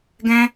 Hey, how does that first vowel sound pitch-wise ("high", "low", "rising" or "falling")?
high